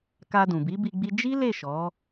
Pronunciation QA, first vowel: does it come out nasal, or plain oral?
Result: oral